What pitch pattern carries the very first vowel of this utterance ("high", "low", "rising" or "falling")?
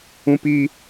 high